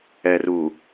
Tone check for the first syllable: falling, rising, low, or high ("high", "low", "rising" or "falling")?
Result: low